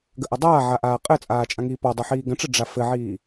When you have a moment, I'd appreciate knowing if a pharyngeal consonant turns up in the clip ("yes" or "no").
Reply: yes